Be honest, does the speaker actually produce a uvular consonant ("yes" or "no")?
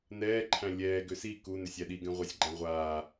yes